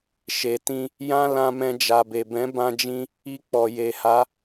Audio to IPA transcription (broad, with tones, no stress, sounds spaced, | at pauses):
ʃ e˨ t ĩ˧ | j ã˦ l ã˧ m ɛ̃˧ d͡ʒ a˨ b e˨ b ɛ̃˨˦ b ã˧ d͡ʒ ĩ˧ | i˧ k͡p ɔ˨ j e˨ h a˨˦